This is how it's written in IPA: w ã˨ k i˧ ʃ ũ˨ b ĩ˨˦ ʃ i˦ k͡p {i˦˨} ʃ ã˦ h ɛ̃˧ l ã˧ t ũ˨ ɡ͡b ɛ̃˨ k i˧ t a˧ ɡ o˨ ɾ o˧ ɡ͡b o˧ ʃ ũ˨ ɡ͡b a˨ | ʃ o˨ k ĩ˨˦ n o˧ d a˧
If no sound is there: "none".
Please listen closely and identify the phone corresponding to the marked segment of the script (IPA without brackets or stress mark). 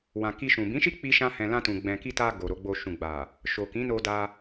i˦